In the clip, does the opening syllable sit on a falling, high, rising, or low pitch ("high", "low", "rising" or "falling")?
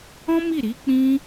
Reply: high